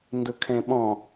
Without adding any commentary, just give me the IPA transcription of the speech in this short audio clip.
n d ɯ kʰ ẽ ɓ ɔ̃

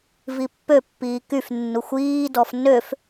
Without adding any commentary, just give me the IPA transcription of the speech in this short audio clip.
v i pː ø pː iː k y f nː u xʷ iː d ɔ f n ø f

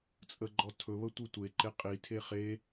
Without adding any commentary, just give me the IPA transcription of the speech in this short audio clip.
t͡sʼ ə ɡ͡ǃ ɔ tʰ ɵ β ə tʷ ɯ tʷ e ǃ e qʼ i tʰ e χ e

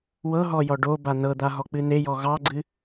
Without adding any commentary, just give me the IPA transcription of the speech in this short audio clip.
w ɤ ɦ ɔ j ɔ ɖ o b a n ɤ d̪ a ɦ ɔ k͡p ɨ n e j ɔ ɣ ɑ ɡ͡ǀ ɨ

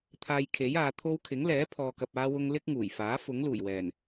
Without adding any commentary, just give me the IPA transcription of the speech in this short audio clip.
t̪ʰ aː˧ j kʰ e˨˥ j aː˨˧ t̪ʰ o˥ w kʰ ɪ˨˥ ŋ l ɛː˨˥ pʰ ɔː˨ k ɐ˨ p̚ aː˥ w ʊ˥ ŋ l ɪ˥ k̚ ŋ uː˨˩ j f aː˨˥ f ʊ˨˥ ŋ l uː˨˩ j w ɛː˨˩ n

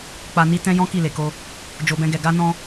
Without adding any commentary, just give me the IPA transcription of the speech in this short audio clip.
k͡p a˧ n i˦ t ɛ̃˦ j ɔ̃˦ k i˦˨ l e˨ k o˧ | d͡ʒ o˧ b ɛ̃˦ ɡ ɛ˧ ɡ a˦ n ɔ̃˦

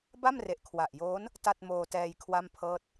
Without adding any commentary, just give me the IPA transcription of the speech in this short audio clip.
b a˥˩ m r e˨˩ ʔ kʰ w a˨˩ ʔ j oː˦˥ n | t a˥˩ t̚ m oː˧ t ɛː˧ j kʰ w a˥˩ m pʰ ɤː˥˩ t̚

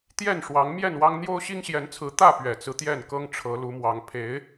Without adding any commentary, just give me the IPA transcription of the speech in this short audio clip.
t̪ j ɛ˥˨ n ʂ w ɑ˨˦ ŋ m j ɛ˥˨ n w ɑ˦ ŋ n̪ j o˦ ʊ̯ ɕ i˦ ŋ ɕ j ɛ˨˦ n t͡sʰ ɹ̩˨˦ t̪ ä˥˨ p ɥ ɛ˨˩ t͡s ɹ̩˦ t̪ j ɛ˥˨ n k ɤ˦ ŋ ʈ͡ʂʰ ɤ˨˦ l u˨˦ m w ɑ˨˦ ŋ pʰ e˨˦ ɪ̯

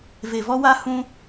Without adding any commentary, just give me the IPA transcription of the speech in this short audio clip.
v e˨ v ɔ˧ w a˧ h ũ˦

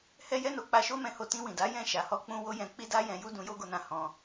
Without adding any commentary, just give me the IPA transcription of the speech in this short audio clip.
h ɛ˦ j ɛ˦ n o˧ k͡p a˧ ʃ o˦ m ɛ̃˧ h o˧ t ĩ˧ w ĩ˨ d a˨˦ j ɛ̃˦˨ ʃ a˨ h ɔ˧ k͡p ũ˧ w o˦ j ɛ̃˧ k͡p i˦ d a˦ j ɛ̃˧ j u˦ d ũ˧ j o˦ ɡ o˧ n ã˧ h ɔ̃˧

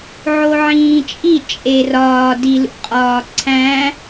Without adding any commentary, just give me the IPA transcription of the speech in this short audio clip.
ʕ o ʕ ĩː t͡ʃʼ i t͡ʃʼ e r ɒː d i l ṵ qʼ ɒː ǀʰ æ̃

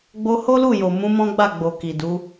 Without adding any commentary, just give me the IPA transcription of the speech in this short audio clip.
ɡ͡b o˧ h o˦ l u˦˨ j o˨ m ũ˨˦ m ɔ̃˦ ɡ͡b a˦˨ ɡ͡b o˨ k i˨ d u˨˦

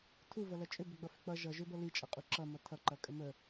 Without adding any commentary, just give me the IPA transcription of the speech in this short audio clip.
tʰ u v ʌ l ɐ t͡ʃʼ ʏ b ʏ ɡ͡b ʌ f ʏ k͡p ʌ ʒ ʌ ʒ ʏ b ʌ l i t͡ʃʼ ʌ qʼ u ǁ ʌ m ʌ tʰ ʌ ǃ ɐ kʼ ə m ə

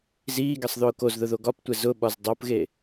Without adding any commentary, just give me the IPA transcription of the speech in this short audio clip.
z iː ɡ ɛ sˤ ð ʊː k o z ð ʊ ð o ɡ ɒ p tʷ ɛ z ʊ ɓ ɒ z dˤ o p ɣ e

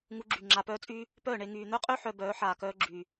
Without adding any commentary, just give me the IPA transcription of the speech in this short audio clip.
ŋ u˧ ɡ͡ǁ y˨ ŋ͡ǁ a˧ p œː˦ t͡sʼ y˦ | p œː˦˨ ɳ e˧ ŋ yː˨ n̪ œ˦ qʼ ø˦ ħ œ˧ b œː˨˦ ħ aː˨ k œː˧ ɡ͡ǁ y˨

